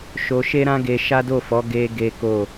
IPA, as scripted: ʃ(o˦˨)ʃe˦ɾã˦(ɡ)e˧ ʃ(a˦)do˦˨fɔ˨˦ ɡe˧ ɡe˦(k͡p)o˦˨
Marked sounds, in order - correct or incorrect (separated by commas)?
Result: incorrect, correct, correct, incorrect